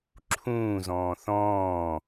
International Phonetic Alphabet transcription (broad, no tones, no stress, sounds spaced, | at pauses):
ǁʰ ũː z ɔ̃ː θ ɔ̃ː